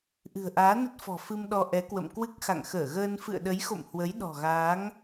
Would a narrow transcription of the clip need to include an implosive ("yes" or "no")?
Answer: yes